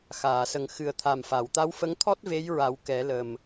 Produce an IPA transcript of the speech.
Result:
x aː˨˩˨ s ə˨˩ ŋ x ɨ˨˩ ə̯ t̪ʰ a˨˩ m f a˨˩˨ w t̪ a˧˥ w f ə˧˥ ŋ t̪ʰ ɔ˦˥ t̚ v e˧˥ j ɹ a˨˩˦ w k ɛ˨˩˦ l ə˨˩ m

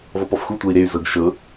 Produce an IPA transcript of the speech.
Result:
v ɔ p ɔ f x u tʷ ɤ i̯ ɾ e y̯ z ɤ ɡ ʃ ɤ

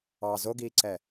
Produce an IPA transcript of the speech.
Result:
ɑ z o ɡ iː ǀ ɛ

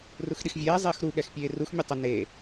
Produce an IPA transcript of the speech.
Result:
r u x ɗ i x vʲ ɛː zˤ eː x ɾ u ɠ ɛ x pʲ eː r u x mʲ e tˤ ʊ n e

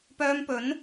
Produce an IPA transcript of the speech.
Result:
p œː˧ m p ɵ˨˥ n

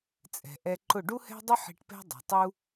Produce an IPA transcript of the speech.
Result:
t͡sʼ ɛ̤˩ ʔ ɛ˧ ǃ ʊ˥˩ ɖ u˥ h ɛ̤˥ dˤ ʊ˥ ħ i̤˧ ʈ p ɛ̤˥ dˤ ɛ̤˩ tˤ u˥

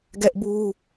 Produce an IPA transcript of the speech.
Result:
ɡ ɛ˦ ʔ b u˦

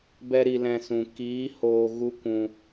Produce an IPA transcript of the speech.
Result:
b ɛ˦ ɾ i˧ l ɛ̃˧ s ũ˨ k iː˨˦ h oː˨ ɣ u˦ kʷ ũ˧

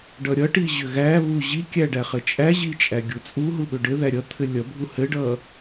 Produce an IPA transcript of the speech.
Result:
ɖ ʌ ɾʲ ʌ ʈ i ʑ ʏ ɣ æ β u ʑ i kʲ æ ɖ æ χ ɘ t͡ʃʼ æ ʑ i t͡ʃʼ æ ɡʲ u t͡sʼ u ɦ u ɓ ʏ ɖ ɘ ð æ ɾʲ ʌ t̪ʰ ɘ lʲ ʌ bʱ u h ɘ ɖ ʌ

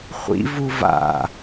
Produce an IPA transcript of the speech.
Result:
χʷ ḭ v u v a̰

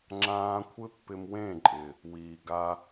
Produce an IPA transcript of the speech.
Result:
ŋ͡ǁ ãː˦ kʷʰ ɪ˦ pː ɪ˧ m w ẽ˦˨ ǃʼ ɪ˨ | w iː˨ ɡ a˧

